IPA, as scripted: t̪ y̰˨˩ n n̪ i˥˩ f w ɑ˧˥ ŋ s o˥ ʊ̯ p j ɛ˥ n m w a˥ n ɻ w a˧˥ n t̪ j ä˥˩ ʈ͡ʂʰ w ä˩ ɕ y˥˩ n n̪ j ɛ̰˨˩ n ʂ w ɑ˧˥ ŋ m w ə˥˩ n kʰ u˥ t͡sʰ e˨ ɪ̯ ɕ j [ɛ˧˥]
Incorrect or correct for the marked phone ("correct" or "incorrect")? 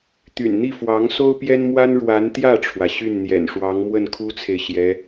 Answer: correct